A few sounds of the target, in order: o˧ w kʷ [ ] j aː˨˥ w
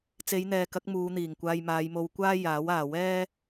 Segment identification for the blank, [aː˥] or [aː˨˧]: aː˥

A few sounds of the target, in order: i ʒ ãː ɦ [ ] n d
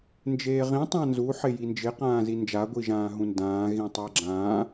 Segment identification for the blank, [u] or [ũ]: ũ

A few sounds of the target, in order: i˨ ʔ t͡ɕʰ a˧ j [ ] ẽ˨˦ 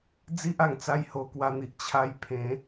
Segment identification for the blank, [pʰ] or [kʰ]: pʰ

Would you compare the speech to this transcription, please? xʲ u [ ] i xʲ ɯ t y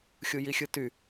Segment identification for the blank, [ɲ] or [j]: j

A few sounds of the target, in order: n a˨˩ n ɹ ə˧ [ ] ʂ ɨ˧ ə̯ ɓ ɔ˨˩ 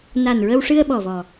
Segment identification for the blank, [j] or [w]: w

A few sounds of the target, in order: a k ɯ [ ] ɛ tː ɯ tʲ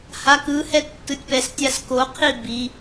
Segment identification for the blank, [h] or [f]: h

